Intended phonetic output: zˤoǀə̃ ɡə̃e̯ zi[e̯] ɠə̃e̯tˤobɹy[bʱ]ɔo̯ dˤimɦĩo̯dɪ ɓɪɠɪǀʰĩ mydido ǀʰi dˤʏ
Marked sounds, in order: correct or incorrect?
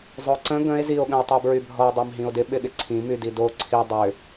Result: incorrect: o̯, correct

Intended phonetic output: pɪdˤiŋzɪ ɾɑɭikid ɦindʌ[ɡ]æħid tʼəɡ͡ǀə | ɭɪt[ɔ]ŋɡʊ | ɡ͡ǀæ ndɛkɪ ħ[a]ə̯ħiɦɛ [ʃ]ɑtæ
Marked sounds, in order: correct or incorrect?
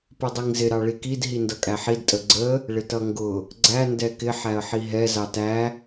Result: incorrect: kʼ, incorrect: ʌ, incorrect: æ, incorrect: z

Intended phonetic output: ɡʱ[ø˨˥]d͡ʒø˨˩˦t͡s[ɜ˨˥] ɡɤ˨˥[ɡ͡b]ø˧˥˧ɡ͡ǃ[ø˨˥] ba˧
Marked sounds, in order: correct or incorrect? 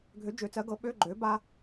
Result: correct, correct, incorrect: ɓ, incorrect: øː˨˥

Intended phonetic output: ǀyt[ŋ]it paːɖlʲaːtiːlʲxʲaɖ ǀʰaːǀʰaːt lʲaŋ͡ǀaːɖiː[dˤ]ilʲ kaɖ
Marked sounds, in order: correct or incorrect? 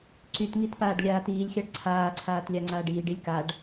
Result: correct, incorrect: ɖ

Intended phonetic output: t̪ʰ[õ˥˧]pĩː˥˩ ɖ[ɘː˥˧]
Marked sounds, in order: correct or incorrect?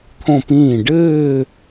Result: correct, correct

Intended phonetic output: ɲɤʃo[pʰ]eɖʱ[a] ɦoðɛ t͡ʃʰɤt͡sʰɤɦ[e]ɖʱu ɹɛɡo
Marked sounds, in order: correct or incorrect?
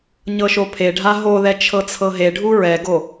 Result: correct, correct, correct

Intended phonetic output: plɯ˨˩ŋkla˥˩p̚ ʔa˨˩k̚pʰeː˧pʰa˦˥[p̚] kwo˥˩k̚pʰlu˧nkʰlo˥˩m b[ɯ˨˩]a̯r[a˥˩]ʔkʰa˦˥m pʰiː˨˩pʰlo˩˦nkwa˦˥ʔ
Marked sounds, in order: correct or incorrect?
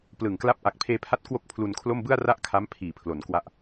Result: incorrect: t̚, incorrect: ɯ˥˩, correct

